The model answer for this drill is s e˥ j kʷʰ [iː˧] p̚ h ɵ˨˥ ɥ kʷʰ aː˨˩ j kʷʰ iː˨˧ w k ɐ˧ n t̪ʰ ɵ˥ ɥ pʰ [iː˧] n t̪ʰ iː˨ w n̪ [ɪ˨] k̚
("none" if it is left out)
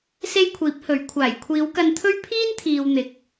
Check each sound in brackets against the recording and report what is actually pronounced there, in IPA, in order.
iː˨˥, iː˥, ɪ˨

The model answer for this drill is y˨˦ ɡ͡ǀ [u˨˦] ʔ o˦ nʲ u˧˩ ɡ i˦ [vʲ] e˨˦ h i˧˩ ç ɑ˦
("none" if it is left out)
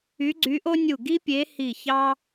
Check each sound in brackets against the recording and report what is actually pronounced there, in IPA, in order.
y˨˦, pʲ

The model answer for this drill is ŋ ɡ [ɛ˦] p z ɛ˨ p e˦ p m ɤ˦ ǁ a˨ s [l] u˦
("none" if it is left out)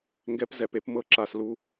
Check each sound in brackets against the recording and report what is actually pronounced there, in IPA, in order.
ɛ˦, l

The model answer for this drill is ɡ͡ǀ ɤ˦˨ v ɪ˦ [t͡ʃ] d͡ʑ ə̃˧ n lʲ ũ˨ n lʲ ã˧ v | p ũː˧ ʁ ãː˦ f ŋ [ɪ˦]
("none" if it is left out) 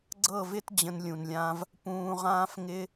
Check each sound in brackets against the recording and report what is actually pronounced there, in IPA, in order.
t, ɪ˦

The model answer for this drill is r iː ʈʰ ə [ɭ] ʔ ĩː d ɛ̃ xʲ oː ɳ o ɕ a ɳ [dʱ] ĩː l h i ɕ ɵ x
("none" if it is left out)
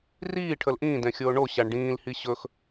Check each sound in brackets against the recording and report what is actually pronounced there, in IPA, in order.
l, ɖ

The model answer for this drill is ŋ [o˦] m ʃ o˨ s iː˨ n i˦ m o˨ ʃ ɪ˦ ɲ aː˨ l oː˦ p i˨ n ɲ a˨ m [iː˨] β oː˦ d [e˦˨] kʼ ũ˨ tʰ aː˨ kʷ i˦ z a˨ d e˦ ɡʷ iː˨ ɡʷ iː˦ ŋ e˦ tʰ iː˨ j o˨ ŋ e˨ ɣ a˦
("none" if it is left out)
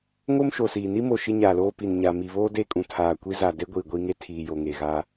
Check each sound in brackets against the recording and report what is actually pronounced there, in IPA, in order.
o˦, i˨, e˦˨

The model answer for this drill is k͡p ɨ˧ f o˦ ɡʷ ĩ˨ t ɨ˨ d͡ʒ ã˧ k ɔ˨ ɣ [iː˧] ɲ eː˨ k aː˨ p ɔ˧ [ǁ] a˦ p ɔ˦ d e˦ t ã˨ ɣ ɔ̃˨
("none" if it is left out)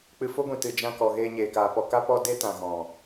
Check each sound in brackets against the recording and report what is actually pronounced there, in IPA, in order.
eː˧, k

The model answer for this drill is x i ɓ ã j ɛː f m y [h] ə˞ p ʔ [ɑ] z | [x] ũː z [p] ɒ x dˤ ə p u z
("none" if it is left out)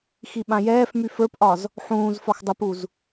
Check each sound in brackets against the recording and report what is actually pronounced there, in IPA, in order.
f, ɒ, ħ, f

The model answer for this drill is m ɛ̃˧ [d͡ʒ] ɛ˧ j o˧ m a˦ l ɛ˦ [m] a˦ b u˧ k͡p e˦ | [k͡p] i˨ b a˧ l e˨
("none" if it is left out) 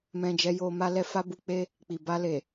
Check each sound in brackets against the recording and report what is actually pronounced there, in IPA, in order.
d͡ʒ, f, k͡p

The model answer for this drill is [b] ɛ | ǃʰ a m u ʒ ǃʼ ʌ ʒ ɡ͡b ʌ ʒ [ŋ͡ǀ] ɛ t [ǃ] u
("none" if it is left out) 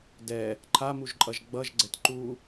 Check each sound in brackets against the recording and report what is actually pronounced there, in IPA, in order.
d, ɡ͡ǀ, ǃ

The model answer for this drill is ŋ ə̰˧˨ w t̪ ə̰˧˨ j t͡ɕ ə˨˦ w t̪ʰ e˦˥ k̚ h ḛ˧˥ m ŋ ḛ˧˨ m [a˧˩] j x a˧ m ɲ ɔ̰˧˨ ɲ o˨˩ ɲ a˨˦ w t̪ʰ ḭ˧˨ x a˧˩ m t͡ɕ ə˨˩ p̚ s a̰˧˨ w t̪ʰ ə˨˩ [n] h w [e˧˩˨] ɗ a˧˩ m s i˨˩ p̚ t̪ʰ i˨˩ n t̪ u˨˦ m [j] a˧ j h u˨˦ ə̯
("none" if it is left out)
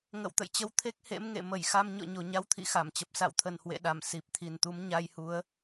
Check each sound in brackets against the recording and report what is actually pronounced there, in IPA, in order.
ə˧˩, n, ḛ˧˨, ɲ

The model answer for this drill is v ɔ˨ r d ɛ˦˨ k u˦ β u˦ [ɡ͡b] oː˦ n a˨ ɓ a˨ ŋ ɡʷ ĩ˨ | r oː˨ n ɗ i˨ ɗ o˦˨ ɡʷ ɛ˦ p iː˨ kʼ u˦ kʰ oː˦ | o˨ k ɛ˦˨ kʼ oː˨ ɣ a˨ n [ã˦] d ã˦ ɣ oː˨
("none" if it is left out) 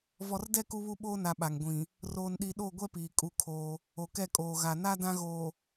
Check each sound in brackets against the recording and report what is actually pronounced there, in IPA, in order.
ɓ, a˦

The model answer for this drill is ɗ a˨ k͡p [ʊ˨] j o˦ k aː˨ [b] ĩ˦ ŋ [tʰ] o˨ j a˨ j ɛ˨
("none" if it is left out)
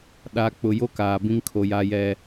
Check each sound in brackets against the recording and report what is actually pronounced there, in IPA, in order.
ʊ˨, b, kʰ

